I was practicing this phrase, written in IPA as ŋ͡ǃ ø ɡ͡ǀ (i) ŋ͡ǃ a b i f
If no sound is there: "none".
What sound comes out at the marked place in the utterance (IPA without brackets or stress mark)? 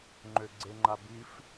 e